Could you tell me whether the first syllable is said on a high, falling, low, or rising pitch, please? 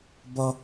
high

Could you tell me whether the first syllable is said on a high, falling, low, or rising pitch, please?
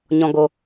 low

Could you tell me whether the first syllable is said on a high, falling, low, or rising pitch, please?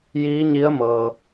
rising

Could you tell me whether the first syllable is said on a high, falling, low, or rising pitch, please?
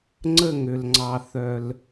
falling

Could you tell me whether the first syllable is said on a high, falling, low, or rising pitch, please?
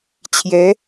rising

